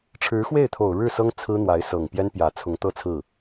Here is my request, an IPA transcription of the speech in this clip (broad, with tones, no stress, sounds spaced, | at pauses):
ʈ͡ʂʰ ɻ̩˧˥ x w e˥˩ ɪ̯ t̪ʰ o˨˩ ʊ̯ ɻ ɻ̩˥˩ s ɤ˥ ŋ t͡sʰ ɹ̩˥ n̪ w a˧˥ ɪ̯ s ɤ˨˩ ŋ p j ɛ˥ n p j ä˨˩ t͡sʰ ʊ˧˥ ŋ t̪ ɤ˥˧ t͡sʰ ɹ̩˥˩